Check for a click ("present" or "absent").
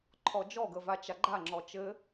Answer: present